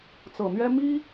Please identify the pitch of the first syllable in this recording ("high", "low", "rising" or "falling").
low